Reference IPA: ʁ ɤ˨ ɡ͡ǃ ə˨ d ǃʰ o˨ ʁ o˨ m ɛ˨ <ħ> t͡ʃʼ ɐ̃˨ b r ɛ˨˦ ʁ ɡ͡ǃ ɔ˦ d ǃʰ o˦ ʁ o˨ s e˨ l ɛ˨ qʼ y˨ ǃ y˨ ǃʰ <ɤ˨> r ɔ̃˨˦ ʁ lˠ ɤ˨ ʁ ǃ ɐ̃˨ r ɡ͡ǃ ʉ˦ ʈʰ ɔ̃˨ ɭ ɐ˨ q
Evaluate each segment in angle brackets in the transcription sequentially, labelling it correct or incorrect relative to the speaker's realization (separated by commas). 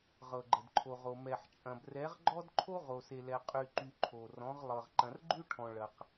correct, incorrect